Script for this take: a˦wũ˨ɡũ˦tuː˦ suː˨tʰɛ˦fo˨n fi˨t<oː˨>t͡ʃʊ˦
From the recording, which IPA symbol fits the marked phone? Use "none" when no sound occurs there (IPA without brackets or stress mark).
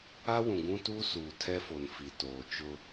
oː˨